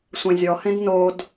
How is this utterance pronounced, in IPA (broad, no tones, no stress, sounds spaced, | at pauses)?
sʷ ẽ zʲ ɔ h ẽ d n o d